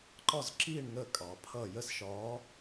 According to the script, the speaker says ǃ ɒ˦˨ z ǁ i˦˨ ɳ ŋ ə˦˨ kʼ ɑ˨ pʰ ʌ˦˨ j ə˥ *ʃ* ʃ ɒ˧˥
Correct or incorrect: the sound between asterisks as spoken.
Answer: incorrect: s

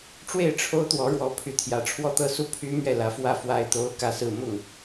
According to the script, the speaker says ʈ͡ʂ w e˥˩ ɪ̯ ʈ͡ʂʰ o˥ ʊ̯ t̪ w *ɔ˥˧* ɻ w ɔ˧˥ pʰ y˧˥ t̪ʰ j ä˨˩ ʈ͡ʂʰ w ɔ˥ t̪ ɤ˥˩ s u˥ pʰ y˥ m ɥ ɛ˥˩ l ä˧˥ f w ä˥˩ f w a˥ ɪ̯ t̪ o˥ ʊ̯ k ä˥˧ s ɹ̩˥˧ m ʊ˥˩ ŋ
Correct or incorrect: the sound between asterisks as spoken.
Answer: incorrect: ɔ˧˥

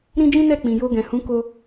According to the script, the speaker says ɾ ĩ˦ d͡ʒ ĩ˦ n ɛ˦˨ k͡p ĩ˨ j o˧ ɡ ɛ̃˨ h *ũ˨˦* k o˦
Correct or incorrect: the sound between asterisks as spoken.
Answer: correct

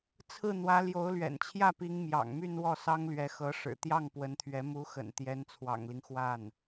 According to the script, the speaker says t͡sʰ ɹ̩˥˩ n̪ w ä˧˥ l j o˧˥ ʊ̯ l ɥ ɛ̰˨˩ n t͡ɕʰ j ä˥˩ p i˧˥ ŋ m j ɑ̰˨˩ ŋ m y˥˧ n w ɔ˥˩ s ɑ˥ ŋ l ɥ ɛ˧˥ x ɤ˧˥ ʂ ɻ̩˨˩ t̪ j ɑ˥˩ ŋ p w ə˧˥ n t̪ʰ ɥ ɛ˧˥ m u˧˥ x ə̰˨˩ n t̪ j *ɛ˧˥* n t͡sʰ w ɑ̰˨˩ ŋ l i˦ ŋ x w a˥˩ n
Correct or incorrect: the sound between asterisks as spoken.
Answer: correct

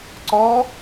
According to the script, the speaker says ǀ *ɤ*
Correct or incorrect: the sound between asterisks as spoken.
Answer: incorrect: ɔ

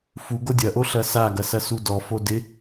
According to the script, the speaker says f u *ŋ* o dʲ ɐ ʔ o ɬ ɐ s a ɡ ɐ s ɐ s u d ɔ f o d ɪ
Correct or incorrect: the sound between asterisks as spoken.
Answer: incorrect: ɡ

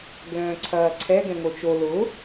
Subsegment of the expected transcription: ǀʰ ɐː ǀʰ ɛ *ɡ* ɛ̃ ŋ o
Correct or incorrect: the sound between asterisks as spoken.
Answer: correct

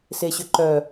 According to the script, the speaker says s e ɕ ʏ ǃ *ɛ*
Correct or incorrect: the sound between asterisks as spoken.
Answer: incorrect: œ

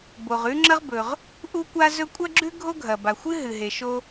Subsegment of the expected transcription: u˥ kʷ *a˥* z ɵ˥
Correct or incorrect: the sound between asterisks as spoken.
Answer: correct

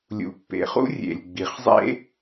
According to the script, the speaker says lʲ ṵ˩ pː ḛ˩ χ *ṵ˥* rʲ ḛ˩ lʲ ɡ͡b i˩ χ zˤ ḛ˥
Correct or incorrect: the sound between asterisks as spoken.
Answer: correct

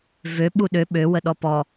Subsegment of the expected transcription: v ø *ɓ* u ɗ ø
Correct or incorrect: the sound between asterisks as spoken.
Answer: correct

